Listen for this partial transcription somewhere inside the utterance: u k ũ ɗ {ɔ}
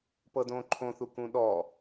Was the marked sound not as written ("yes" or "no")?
no